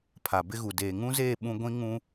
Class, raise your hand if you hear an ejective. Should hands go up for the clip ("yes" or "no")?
no